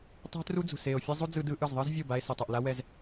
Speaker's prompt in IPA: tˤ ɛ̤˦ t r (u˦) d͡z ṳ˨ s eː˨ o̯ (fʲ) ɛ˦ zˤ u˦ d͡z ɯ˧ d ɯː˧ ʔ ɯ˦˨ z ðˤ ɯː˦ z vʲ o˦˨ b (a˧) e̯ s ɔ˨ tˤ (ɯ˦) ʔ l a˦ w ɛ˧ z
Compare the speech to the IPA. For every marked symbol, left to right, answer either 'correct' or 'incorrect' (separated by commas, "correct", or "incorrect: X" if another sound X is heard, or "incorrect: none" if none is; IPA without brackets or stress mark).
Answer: correct, correct, correct, incorrect: ɯ˨